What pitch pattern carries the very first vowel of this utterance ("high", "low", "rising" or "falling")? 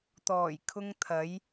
low